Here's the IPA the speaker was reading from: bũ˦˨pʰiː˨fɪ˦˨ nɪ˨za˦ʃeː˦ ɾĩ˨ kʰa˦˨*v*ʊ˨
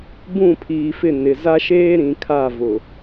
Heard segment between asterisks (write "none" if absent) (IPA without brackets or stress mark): v